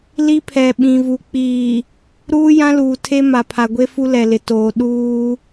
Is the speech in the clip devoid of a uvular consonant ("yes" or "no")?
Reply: yes